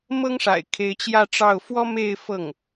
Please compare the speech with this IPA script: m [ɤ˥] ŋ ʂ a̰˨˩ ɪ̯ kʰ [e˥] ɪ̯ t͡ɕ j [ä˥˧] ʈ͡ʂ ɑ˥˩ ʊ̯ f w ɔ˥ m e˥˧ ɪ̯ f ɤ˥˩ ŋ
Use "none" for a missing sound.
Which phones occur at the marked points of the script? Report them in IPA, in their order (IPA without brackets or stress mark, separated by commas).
ɤ˥, e˧˥, ä˥˧